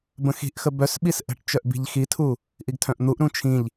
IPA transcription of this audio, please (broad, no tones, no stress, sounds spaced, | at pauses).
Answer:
b ə̃ x i̤ ʔ x ə b œ s ɓ i s ʔ ə̤ ʈ t͡ʃ œ ʔ b i̤ ʎ x i tʰ u | ʔ i ɡ tʰ œ̃ ʔ n̪ u ʔ ɾ ũ t͡ʃʰ ĩ ʎ